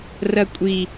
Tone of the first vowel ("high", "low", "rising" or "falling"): high